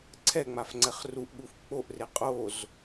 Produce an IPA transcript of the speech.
ǀʰ ɛ ŋ͡m a f ŋ͡ǀ ɛ χ r u ʔ ɠ u f k͡p o ʔ r e qʼ o z

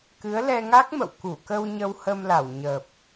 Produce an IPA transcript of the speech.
k ɨ˨˦ ə̯ l ɛ˧ ŋ a˦˥ k̚ m ə̰˧˨ w k u˧˩ k ə˧ w ɲ ə˧ w h ə˧ m l a˧˩ w ɲ ə˨˩ p̚

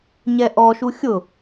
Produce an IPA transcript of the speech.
ɲ ɛ ʔ ɔ ʃ u xʲ ʊ

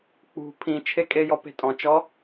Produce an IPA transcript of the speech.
k͡p ṳ pʰ ĩ t͡ʃʰ e kʼ e j ɔ p e̤ tʼ ɔ̃ t͡ʃ ɔ

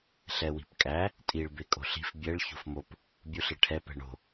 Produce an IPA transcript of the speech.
ɬ ɛ w i̤ p kʼ æ | tʼ i ɭ b e kʼ o̤ ɬ i̤ f bʲ ɛ ɭ ç o̤ f m o p | bʲ u ɬ e ʈʰ ɛ p ɛ̤ ɳ o̤

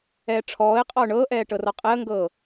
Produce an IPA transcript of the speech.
ɛː ʈ͡ʂʰ ɔː ɪ̯ qʼ ɔ ʊ̯ ɳ ɤː ʔ ɛː ʈ ɤ r ɔ qʼ ɛ ə̯ ŋ ɡ ɤː

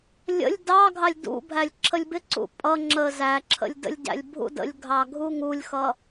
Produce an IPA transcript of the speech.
lʲ ə̰ lʲ d ɑ ɡʱ ɑ lʲ d ṵ bʱ æ lʲ ǁʰ ə lʲ b ɪ ǀ ṵ pʼ ʌ ŋ͡ǁ ə z æ ǁʰ ə̰ lʲ d ə̰ lʲ ɟ æ̰ lʲ bʱ ṵ d ə̰ lʲ ɡʱ ɑ ɡʱ u ŋ u lʲ x ʌ

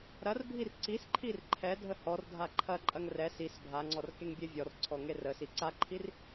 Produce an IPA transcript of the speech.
ɾ ɐ r bʱ i r ǀ i s ǃʰ i r ǃʰ ɛ dʱ ə h ɔ r dʱ a ǃʰ ɐ ǃʼ ɐ ŋ r ɛ s i s bʱ a ŋ͡ǀ ɔ r k e ŋ bʲ e vʲ ɔ r ǀʰ ɔ ŋ e r ə s i ǀ a ǃʰ i r

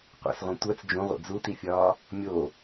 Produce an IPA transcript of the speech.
qʷ ḭ s ʁʷ ẽ tʷ æ t͡s d͡ʒ ũ ʁʷ ḭ d͡z u t i fʲ ɒː | mʲ o

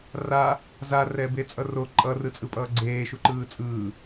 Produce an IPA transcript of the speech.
r a | z a r ɛ b e t͡sʼ ʌ r o ǃʼ ʌ r ɯ t͡sʼ ɯ pʼ ʌː ɡ͡ǀ eː ʃ u ǃ ɯː t͡sʼ ɯː

